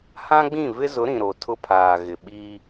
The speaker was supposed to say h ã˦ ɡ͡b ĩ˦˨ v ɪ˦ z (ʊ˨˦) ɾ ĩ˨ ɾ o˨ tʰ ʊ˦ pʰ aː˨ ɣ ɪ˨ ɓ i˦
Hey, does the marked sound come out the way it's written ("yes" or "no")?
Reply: yes